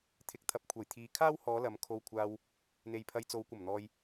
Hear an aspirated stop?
yes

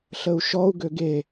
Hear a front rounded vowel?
yes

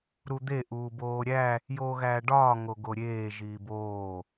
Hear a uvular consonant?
no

